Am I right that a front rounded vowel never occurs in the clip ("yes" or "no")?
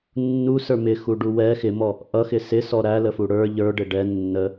yes